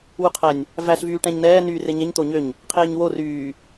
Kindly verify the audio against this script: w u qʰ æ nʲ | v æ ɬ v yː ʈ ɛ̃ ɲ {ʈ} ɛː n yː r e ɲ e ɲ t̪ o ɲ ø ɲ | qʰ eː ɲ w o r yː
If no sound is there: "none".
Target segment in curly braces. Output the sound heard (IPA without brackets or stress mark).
n